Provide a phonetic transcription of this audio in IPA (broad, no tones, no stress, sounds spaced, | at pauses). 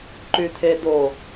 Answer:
ǃ y t̪ʰ e d̪ o